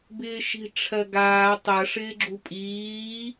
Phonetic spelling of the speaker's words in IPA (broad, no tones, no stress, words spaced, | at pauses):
bɪːʃi̤ ʈ͡ʂʰɜɡaː tˤɜʂ ɪːɡ͡ǁupʼiː